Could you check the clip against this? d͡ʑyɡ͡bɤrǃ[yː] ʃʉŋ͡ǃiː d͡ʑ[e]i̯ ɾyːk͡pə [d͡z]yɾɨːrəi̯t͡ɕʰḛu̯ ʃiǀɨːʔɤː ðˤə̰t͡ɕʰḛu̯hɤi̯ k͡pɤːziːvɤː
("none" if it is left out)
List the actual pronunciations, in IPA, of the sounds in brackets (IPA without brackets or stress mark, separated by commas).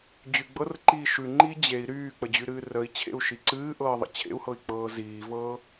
iː, e, d͡ʑ